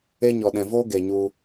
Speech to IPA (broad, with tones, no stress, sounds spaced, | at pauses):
e˦ ɲ ɔ˨ ɗ ɛ̃˨ v o˦ ɡ e˨ ɲ u˧